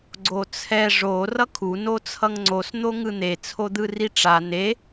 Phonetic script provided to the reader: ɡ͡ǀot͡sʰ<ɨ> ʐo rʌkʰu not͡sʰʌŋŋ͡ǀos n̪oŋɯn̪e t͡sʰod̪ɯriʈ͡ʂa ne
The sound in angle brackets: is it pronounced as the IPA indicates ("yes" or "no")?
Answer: no